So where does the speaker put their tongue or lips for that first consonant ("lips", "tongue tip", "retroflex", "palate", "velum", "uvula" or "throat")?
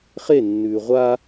uvula